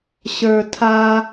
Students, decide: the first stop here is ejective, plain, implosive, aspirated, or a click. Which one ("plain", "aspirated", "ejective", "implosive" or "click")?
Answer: aspirated